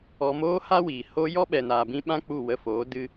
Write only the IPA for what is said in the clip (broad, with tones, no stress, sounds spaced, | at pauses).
ɔ˧ m oː˦ h a˦ w iː˨ h o˦ j ɔ˦ ɓ ɛ˨ n aː˨ b ĩ˧ ɓ ã˦ k͡p u˦˨ w ə˧ f oː˨˦ d ɨ˦